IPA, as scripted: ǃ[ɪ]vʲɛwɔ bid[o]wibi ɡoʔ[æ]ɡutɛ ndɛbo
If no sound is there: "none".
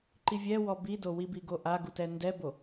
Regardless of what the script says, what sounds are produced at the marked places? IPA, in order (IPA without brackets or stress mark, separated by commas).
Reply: i, o, a